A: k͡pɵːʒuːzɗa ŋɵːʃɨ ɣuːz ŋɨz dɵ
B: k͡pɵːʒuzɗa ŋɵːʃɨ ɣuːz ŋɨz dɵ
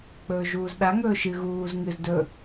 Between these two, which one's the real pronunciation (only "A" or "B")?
A